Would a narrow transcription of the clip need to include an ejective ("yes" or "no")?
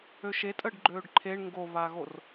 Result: yes